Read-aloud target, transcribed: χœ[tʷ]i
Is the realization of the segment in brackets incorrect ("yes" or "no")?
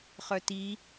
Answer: yes